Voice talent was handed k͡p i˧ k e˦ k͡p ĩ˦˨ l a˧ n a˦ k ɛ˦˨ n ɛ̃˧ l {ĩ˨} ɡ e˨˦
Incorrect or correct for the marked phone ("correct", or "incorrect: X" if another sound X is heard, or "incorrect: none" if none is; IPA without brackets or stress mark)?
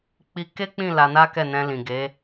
correct